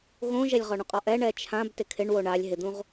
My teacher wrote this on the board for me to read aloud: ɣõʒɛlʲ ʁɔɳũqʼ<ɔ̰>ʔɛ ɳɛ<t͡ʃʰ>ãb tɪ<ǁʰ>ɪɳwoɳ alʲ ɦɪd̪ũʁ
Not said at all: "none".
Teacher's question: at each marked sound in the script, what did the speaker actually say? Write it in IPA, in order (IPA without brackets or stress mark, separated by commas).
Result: ɔ, t͡ʃʰ, kʰ